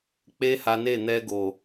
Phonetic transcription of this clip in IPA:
k͡pe˦ha˧ne˦˨ n̪ɛ˧ɡo˨

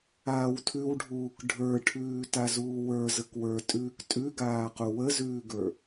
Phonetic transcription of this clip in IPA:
aːwtʰʉwɖʱuːk ɖʱə˞ʈʰʉː tazuːwə˞ zəkwə˞tʼʉːk tʼʉɡaːqu wəzʉːɡə˞

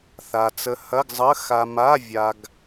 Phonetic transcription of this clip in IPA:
θa˧ t͡sə˧hɐ˧˥˧ɡzˤə˧˥˧ xa˧ma˧˥˧vʲa˧ɡ

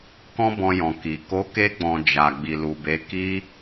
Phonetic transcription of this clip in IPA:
kɔ̃˦bɔ̃˧jɔ̃˨ ki˨ ko˨˦ke˧ɡ͡bɔ̃˨ d͡ʒa˨ ɡ͡bi˨lu˨be˨˦ ki˧

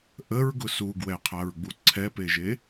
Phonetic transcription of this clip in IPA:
ʔəɹɡʊ suɡwɛqʰaɹɡ͡bu ǀʰɛpeʒe

